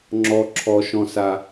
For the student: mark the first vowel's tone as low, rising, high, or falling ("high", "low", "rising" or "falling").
high